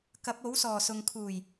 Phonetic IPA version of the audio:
k ɐ˨˥ p̚ o˨˥ w s ɔː˨˩ s ʊ˨ ŋ kʰ uː˨˩ j

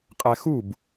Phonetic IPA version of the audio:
qʼ æ x u b

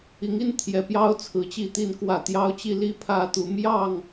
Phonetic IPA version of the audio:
i˨˦ ŋ i˦ n t̪ʰ j ɛ˨˩ p j ɑ˦ ʊ̯ t͡sʰ ɹ̩˨˦ t͡ɕ i˥˨ t̪ i˥˨ n k w ä˥˨ t̪ j ɑ˦ ʊ̯ t͡ɕ i˦ l i˦ pʰ ä˦ t̪ u˨˦ m j ɑ˥˨ ŋ

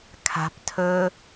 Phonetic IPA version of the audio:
kʰ a̤ p tʰ ɵ

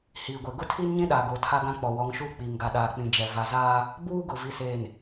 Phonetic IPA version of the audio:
h iː˨ ɡʷ ɛ˨ ɡ ʊ˦ tʰ i˦ n ɲ ĩ˦ ɗ aː˨ ɡ oː˨ tʰ a˦ ɡ ã˦ k͡p ɔ˨ w ɔ˨˦ ŋ ʃ uː˦ k͡p iː˨ ŋ ɡ a˨ ɗ aː˨ k͡p ĩ˨ d͡ʒ ɛ˨ v a˨ z aː˦ | b uː˦ ɡ ʊ˨ v i˨ s eː˨ n

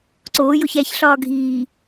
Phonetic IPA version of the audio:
ǀ oː j o ç æ ç ɬ ɒː ɡʱ iː

